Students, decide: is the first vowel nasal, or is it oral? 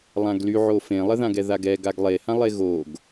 nasal